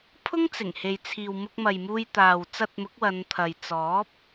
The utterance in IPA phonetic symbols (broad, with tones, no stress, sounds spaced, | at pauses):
pʰ ʊ˥ ŋ t͡s ɪ˨˩ ŋ h e˨ j t͡sʰ iː˨ w m ʊ˧ k̚ m ɐ˨ j m uː˧ j t̪ aː˨ w t͡s ɐ˧ t̚ m ʊ˨˥ k̚ w ɐ˨˧ n t̪ʰ ɐ˨ j t͡s ɔː˨˥ p̚